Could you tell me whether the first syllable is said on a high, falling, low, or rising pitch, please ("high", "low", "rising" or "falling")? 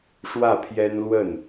falling